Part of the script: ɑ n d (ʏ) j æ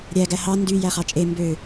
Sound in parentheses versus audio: incorrect: y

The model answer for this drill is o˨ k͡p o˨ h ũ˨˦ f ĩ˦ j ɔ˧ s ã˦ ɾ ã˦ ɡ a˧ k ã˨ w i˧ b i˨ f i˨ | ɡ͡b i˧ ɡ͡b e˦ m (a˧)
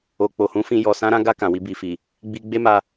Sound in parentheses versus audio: correct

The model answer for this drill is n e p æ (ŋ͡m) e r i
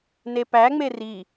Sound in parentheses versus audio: correct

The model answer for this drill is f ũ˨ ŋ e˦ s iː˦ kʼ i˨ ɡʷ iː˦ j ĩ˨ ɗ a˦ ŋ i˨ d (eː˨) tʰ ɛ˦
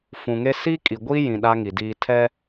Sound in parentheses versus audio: incorrect: iː˨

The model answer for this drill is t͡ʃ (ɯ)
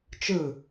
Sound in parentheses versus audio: correct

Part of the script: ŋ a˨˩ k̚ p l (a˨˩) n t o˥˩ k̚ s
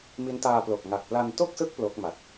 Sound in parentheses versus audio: incorrect: a˧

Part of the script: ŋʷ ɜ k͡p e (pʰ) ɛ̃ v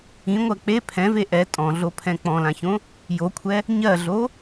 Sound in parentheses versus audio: correct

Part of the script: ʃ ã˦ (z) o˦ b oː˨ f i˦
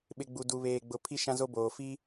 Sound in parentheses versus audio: correct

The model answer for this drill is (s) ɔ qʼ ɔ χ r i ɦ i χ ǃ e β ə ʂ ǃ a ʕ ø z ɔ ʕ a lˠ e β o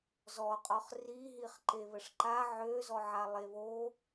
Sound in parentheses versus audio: incorrect: z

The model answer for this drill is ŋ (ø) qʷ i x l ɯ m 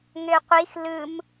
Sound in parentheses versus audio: correct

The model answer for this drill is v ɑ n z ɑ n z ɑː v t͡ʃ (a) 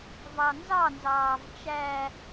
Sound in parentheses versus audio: incorrect: æ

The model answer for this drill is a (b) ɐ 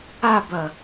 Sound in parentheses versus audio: correct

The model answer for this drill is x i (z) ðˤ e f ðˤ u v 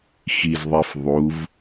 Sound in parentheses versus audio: correct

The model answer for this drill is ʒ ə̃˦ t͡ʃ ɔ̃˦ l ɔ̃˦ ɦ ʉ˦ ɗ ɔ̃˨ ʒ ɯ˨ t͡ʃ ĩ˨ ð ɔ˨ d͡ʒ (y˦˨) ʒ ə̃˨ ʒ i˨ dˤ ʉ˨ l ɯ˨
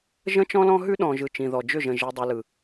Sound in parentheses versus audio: incorrect: ʏ˦˨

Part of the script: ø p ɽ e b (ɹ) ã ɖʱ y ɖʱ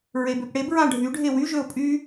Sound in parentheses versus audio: correct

